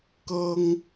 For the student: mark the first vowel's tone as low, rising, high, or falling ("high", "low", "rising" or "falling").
high